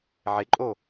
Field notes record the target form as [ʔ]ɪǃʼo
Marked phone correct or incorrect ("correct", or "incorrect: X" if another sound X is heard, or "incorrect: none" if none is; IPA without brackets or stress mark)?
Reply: incorrect: ʕ